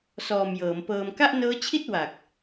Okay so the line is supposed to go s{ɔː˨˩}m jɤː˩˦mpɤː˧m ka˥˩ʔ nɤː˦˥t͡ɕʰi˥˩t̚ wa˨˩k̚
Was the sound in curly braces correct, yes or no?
yes